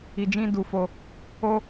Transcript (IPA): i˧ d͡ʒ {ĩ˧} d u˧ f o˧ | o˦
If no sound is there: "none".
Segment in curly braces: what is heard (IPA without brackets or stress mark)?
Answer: ĩ˦